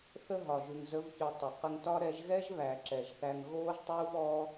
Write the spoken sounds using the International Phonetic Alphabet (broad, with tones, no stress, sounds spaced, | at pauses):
θ ə˦ ɦ ɒ˨ ʒ ʉ˨ ŋ z ə˨˦ v ç ʉ˨ tˤ ə˨ q ə˧ ŋ t ɒ˦ ɾ ɛ˧ ʒ ɣ ɛ˦ ʒ β æ˨ ǁ ɛ˨ ʒ θ æ˧ ŋ ɣ oː˦ ʒ tˤ uː˦ v ɔ˦